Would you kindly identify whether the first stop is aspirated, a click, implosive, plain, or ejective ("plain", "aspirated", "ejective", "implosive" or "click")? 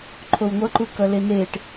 click